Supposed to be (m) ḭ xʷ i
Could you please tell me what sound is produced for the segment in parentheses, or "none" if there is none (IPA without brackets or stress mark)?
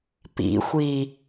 p